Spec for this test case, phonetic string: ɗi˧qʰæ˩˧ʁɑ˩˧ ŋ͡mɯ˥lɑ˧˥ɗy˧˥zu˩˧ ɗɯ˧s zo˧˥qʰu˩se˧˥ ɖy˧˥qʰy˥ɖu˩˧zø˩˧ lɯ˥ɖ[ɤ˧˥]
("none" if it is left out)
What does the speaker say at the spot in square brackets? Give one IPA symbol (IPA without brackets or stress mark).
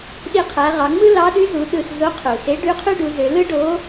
o˧˥